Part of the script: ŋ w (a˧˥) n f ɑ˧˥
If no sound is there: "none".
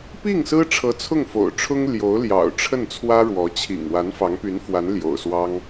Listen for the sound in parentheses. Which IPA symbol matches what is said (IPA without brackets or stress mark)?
a˧˥